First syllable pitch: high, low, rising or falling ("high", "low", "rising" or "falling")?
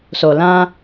low